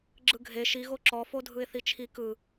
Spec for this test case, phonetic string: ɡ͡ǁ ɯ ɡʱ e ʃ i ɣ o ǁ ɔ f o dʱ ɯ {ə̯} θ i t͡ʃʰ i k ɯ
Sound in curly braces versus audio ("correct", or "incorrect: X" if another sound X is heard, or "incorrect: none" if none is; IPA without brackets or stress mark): incorrect: ɪ̯